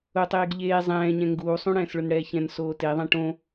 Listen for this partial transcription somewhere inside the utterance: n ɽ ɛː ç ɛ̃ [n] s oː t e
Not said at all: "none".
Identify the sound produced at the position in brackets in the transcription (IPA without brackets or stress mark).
n